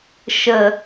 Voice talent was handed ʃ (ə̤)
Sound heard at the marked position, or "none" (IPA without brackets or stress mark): ə